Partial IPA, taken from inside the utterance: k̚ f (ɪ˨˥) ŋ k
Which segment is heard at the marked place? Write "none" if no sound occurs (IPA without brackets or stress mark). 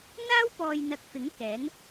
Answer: ɪ˨˥